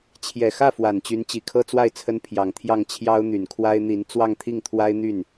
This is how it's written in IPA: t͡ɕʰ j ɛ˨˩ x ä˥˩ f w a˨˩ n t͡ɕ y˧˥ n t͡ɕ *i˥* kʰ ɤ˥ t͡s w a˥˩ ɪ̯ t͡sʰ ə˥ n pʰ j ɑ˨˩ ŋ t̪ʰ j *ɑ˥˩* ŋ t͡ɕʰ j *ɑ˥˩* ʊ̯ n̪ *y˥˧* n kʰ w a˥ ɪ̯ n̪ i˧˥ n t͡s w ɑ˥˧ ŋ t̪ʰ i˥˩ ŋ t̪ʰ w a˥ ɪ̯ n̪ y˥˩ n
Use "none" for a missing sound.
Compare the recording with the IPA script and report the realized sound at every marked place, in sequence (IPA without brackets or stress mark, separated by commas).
i˨˩, ɑ˥˩, ɑ˥, y˨˩